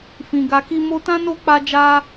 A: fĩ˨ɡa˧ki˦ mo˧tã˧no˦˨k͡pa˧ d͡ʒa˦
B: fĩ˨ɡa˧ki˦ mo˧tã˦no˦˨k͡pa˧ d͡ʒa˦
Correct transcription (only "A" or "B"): B